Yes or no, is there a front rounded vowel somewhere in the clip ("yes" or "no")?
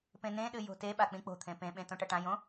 no